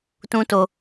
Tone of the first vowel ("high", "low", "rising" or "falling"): high